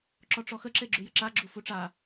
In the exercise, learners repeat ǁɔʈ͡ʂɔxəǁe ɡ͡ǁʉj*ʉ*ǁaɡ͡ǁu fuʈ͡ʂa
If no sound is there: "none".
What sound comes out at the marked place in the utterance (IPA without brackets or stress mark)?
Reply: ə